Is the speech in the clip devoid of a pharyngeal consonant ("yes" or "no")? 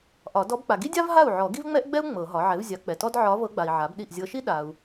no